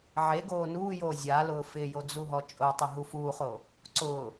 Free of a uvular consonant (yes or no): no